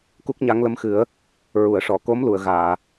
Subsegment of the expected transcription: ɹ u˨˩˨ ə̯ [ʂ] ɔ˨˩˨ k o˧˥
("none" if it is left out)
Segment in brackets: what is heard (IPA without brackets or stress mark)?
ʂ